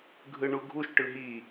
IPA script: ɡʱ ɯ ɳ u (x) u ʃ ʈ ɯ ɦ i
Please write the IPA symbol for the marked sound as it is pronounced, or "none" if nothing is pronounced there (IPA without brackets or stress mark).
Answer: ɡʱ